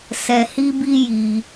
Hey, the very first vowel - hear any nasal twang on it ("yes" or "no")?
no